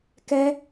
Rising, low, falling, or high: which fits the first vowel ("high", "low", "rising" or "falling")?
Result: high